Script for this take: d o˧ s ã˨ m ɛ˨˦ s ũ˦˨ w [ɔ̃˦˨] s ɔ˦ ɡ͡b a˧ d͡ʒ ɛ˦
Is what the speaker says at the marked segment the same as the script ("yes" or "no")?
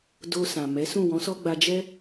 no